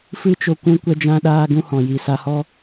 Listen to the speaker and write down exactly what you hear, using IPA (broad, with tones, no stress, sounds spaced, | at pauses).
f ɨ˦ t͡ʃ o˧ kʷ ũ˦ kʷ ɛ˦ d͡ʒ ã˦ ɗ aː˦ ɡ ũ˦ h ɔ̃˨ j i˨ s a˧ h ɔ˦